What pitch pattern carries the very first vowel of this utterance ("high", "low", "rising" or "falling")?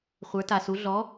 rising